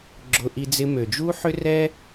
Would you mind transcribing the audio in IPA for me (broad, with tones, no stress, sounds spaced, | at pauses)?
ɡ͡ǁ ʊ˧ ʔ i˧ d͡z ɪ˧ m ø˨ d͡ʒ u˦ ħ ʏ˦ r ɛ˦